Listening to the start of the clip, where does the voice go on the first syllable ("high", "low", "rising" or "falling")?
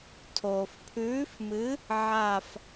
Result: low